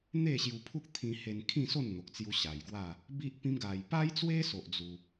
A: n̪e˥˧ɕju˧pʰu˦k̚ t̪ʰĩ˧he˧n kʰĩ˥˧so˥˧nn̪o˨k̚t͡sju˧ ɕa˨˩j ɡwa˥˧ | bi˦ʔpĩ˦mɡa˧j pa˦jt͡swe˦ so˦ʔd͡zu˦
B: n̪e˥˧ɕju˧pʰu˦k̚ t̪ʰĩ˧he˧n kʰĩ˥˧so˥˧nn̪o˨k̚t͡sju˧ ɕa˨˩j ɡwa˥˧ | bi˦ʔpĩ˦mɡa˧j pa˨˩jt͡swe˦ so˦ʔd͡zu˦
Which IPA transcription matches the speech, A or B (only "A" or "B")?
A